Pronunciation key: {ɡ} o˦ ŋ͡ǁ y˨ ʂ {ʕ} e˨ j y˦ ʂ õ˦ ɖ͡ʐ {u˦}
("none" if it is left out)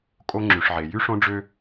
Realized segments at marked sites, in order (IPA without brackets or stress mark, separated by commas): kʼ, ʕ, ø˦